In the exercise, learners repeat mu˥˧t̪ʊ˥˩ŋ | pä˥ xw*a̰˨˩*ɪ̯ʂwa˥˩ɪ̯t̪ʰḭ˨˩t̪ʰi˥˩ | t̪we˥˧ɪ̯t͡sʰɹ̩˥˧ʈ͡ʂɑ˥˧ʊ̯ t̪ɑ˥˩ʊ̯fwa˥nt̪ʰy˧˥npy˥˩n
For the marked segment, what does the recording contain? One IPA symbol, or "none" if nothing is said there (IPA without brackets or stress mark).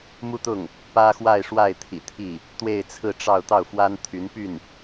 a˥˧